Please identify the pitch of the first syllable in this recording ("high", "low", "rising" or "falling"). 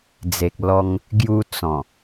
low